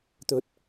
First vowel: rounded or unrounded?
rounded